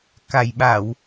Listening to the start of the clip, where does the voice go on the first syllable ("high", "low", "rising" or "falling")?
low